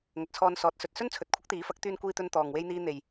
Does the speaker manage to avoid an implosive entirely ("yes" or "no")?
yes